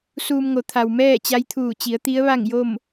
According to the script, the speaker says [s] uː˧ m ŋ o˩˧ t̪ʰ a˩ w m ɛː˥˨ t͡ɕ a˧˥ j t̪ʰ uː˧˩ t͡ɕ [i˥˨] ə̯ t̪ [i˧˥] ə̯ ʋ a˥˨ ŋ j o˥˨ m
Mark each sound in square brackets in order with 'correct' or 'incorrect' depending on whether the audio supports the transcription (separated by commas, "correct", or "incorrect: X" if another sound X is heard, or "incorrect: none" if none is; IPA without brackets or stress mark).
correct, incorrect: i˩˧, correct